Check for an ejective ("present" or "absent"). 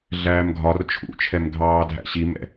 absent